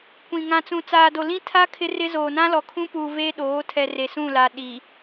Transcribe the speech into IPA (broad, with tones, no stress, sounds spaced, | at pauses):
kʷ ĩ˨ ŋ ã˨ t͡s ũ˨ t͡s aː˨ d o˨ l ĩ˦ tʰ a˦ kʰ ɪ˦ r ɪ˦ z oː˨ n ã˦ l ɔ˨ kʰ ũ˦ p u˨ v e˦ ɗ oː˨˦ tʰ ɛ˨ r e˨ s ũ˦˨ l a˨ ɗ i˨